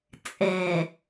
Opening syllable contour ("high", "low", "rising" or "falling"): low